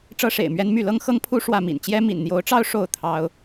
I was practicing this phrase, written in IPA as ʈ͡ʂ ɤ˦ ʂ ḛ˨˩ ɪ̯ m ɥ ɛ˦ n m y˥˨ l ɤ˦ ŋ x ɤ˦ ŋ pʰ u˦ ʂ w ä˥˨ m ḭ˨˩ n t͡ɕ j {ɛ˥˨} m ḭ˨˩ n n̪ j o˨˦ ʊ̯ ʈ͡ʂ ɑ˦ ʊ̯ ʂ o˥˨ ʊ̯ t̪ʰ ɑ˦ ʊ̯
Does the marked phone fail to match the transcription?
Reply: yes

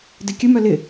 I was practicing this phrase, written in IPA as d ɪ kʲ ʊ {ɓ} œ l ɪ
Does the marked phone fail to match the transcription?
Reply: yes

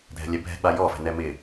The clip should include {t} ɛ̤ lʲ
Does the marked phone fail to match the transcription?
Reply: yes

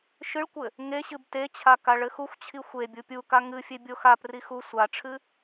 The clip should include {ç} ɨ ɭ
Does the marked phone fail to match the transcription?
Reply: yes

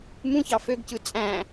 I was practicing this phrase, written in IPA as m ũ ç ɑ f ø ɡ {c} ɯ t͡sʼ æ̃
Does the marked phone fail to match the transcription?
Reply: no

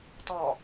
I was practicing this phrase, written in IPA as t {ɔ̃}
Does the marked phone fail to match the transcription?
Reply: yes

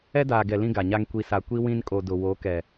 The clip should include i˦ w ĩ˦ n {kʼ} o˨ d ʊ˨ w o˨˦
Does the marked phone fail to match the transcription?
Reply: no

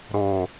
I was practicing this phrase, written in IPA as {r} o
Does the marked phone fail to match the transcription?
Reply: yes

